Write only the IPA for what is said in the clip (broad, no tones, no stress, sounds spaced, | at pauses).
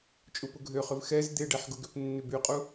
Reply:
t͡ʃʼ u p ʊ ɡʱ ø χ ʏ v x ɛ z d̪ e ɖ ɛ ħ ɡ ʊ ɡ ʏ p nː ʏ b y qʼ u